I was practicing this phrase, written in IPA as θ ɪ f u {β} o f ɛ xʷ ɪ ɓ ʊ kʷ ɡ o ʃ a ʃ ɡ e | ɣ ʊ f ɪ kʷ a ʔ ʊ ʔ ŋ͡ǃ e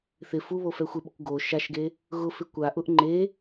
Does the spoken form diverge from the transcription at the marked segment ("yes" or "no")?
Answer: no